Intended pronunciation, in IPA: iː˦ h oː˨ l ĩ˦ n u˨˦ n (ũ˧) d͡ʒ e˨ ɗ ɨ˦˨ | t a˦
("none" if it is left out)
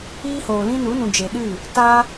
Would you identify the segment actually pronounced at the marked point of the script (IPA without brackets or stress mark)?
ũ˨